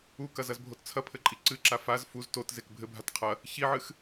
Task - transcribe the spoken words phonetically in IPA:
u k ɐ z ɐ z bʱ o t t͡sʰ ɐ pʰ ɘ ǃʼ i ǀ ɨ ǁ a f a z f u z t o t z e k bʱ ɘ bʱ a t qʰ ɐ | ç i ʕ ɨ x

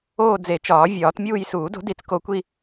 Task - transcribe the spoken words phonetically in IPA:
oː˥˧ d͡z e˨˩˦ t͡ʃ ɒː˨˩˦ vʲ ɒː˨˩˦ t mʲ uː˥˧ j s uː˨˩˦ d o̤˨˥ d i˨˩˦ t͡s k o˨˥ kʷ i˥˧

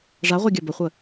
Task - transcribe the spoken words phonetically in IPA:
ʐ a ʁʷ ɛ ɡʲ ɐ b ə χʷ ə

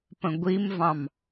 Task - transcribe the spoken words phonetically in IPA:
p ə̃ ɡʷ i m v ɑ̃ m

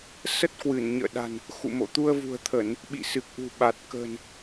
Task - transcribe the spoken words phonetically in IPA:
s ə˦˥ t̚ k w ɨ˧˩ n ɲ ə̰ː˧˨ ɗ a̤˨˩ n | x ṵ˧˨ m o̰˧˨ t̪ u˧ ə̯ v ṳ˨˩ ə̯ t̪ʰ ə˧˩˨ n | ɓ ḭ˧˨ s ɨ˨˩ k̚ ʔ ṳ˨˩ ɓ a˨˩ t̚ k ə̤˨˩ n

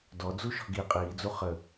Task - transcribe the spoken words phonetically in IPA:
d ɔ d͡z u ʃ ɔ̤ ɡ i qʼ iː d͡z u χ ə

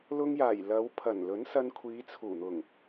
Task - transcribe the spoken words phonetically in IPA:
l ʊ˧ ŋ j aː˨˩ j l ɐ˨˧ w pʰ ɐ˨˩ n l ɵ˨˥ n s ɐ˧ n kʷʰ iː˨˧ t͡sʰ uː˨˩ n̪ ʊ˨˩ ŋ

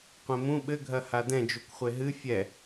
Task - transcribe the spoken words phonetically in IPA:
qʷ ẽ m ũ ɓ ɘ ɡʱ ɐ h a d ɛ̃ d͡ʒ u kʷ χʷ e ɦ ɨ fʲ ɛ

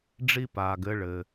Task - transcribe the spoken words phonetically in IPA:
ɖ͡ʐ i˥ p aː˨ ɡ ɘ˥ ɭ ɘː˨

